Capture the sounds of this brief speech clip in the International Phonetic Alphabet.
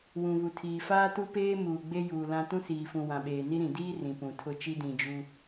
wũ˨βu˨tʰiː˨ faː˦tu˦peː˦ muː˨ɡ͡be˦juː˨lã˦ tũ˦siː˨fũ˨ wã˨ɓeː˨ ni˦ɾĩ˨ diː˦ rĩ˨ pũ˨tʰʊ˦ t͡ʃi˦dĩ˨ d͡ʒu˦

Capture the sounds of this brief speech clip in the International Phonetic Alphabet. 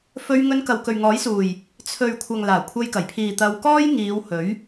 fɵ˧ɥ ŋɵ˧n kɐ˨wkɵ˨ɥŋɔː˨˥jsuː˨˩j | t͡sʰɵ˨ɥkʷʰɐ˨ŋ laː˨˩kʷʰɐ˧jkɐ˨˩jpʰiː˨ t̪ɐ˧wkɔː˥jŋiː˨˧w hɵ˨˥ɥ

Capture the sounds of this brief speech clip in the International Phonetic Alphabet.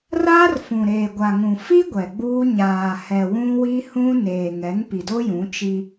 raː˦rfũ˨ɾeː˨ ɡʷa˨ŋũ˨ fi˦ ɡʷɛ˨ɡ͡buː˦ ɲaː˨hɛ˨ wũ˦wi˦hũ˦ neː˨ŋɛ˨˦ŋ pi˨do˦jũ˨˦ t͡ʃi˦

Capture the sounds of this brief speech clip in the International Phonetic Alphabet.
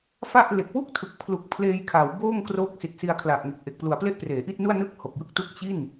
fa˥˩ʔ le˨˩k̚ wu˥˩k̚tʰɯ˨˩k̚pʰlu˨˩k̚ pʰleː˧jkʰa˩˦w boː˥˩ŋkro˦˥k̚ si˨˩t̚si˧a̯kʰla˨˩ʔŋe˨˩k̚ ʔe˨˩k̚plu˩˦a̯ple˥˩ʔ preː˩˦ʔi˥˩t̚nu˥˩a̯ nɯ˥˩k̚ ho˨˩k̚jɯ˥˩k̚tu˥˩k̚ t͡ɕi˥˩n

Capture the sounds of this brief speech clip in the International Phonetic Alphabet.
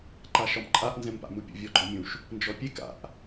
ǃaʃɒmǃʼaʔ nzɛ̃mpa̰mupʲə̰ vʲɔɡ͡ǃɔmʲũʃ | nd͡ʒɔpʲek a̰ʔ

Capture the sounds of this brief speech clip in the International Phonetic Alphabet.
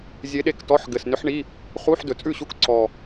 zʲe˧˥ɗe˥˩ktɔ˧˥˧ħ ɡɘ˨˩snʏ˧˥ħ ɳi˧˥˧ | χu˧˥˧ħdɵ˨˩t͡sʼʉ˥˩ɕu˧˥˧k ǀɔ˨˩

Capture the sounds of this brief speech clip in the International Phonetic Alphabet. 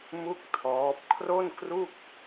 mu˥˩k̚ tʰɔː˦˥p̚ kʰro˥˩nkru˥˩k̚

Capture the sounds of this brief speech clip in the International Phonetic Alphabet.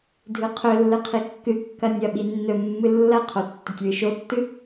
dʱɨqʰɵlːɨ qʰikːɨkːɐ nʲɐɓi nːɵmːɨ lːɐqʰo tːɵtʲwɨʃotːɨ

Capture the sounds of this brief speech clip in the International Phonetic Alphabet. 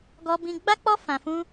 ɡɔ˦ bĩ˧ɡ͡ba˦k͡pɔ˦ fã˧fũ˦

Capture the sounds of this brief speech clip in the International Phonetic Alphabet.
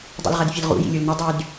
dˤṵlʁɐdfʲɘlʁṵ jḭlʲulnɘ dˤyd

